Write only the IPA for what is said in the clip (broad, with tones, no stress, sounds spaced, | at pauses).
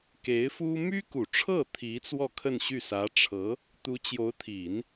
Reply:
k e˧˥ ɪ̯ f u˥ m y˥ k u˨˩ ʈ͡ʂʰ ɤ˥˩ t̪ʰ i˧˥ t͡s w ɔ˥˧ kʰ ə˥˧ n ɕ y˥˩ s ä˧˥ ʈ͡ʂʰ ɤ˧˥ | t̪ u˧˥ t͡ɕ j o˧˥ ʊ̯ t̪ʰ i˨˩˦ n